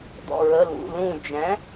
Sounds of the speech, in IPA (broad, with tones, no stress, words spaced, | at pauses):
d̪ɔ̰˧˩ɹə˩˧˩lṵ˩˧˩lũ˧˩ d͡ʒɛ̃˩˥